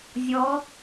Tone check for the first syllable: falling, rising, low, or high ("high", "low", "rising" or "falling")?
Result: rising